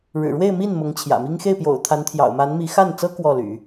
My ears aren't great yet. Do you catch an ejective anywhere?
no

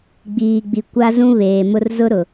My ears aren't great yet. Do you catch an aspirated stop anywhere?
no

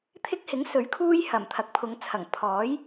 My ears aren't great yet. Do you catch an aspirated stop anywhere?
yes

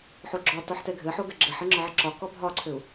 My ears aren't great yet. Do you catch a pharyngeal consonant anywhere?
yes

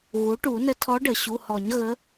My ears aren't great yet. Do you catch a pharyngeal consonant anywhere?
no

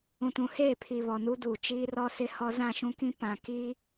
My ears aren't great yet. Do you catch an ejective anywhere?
no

